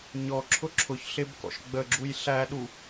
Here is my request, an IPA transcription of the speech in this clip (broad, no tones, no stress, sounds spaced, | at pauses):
ɲ ɔ ǁʰ ʊ ǁʰ ʊ ç ɬ ɪ b k ɔ̰ ʃ ɡ͡b ə ɡ͡ǁ u j ɬ æ ɗ u